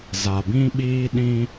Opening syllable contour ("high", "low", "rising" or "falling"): low